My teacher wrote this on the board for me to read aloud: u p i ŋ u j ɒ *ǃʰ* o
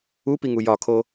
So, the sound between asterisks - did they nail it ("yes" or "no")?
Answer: no